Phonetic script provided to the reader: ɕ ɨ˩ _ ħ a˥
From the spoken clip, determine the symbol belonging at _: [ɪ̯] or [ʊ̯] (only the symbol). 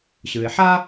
ɪ̯